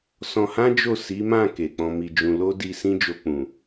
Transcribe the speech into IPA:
s ɔ̃˧ h ã˦ d͡ʒ o˦˨ s i˨˦ m ã˦˨ k e˨ k͡p ɔ̃˧ m i˧ d͡ʒ ũ˧ l o˦ d i˧ s ĩ˦ d͡ʒ o˧ k͡p ũ˨

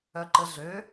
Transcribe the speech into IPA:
œ ǃ ə ɮ ø

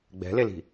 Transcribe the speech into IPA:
ɡ͡b ɛ̤ l e l i̤

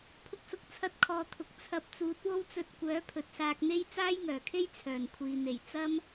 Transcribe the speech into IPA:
pʰ ʊ˧ k̚ s ʊ˨ k̚ t͡sʰ ɐ˧ t̚ kʰ ɔː˨ t̪ʰ ʊ˨ k̚ t͡sʰ ɐ˧ p̚ t͡s uː˨˥ t̚ w o˥ w t͡s ɵ˧ t̚ kʷ œː˨˥ pʰ ɵ˨ t̚ s aː˧ k̚ n̪ e˥ j t͡s aː˥ j ŋ œː˨˩ kʰ e˥ j t͡sʰ œː˨˩ n kʷʰ iː˨ n̪ e˨˩ j t͡s ɐ˥ m

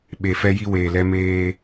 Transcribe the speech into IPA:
ɓ e˨ f ɛ˦ j i˦ w eː˨ l ɛ˦ m eː˦

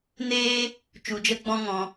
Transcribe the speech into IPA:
n eː˦ | t͡ʃ u˧ d͡ʒ ə˦ ɡ͡b ɔ̃˦ ŋ ɔ̃˧

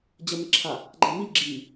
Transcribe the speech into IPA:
d͡ʑ ə m e ǁʰ a | ɡ͡ǃ æ m i ɡ͡ǁ i

